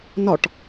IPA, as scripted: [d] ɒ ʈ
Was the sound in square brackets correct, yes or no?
no